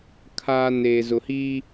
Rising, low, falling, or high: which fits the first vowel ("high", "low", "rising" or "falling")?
high